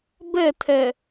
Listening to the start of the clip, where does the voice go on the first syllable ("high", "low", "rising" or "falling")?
falling